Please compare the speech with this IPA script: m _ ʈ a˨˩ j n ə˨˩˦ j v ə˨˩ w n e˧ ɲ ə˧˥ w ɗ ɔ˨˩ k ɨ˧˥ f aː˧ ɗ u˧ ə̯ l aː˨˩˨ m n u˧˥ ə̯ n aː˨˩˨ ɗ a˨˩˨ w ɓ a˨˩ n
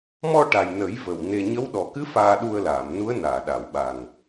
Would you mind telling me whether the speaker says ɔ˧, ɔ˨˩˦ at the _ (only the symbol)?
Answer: ɔ˧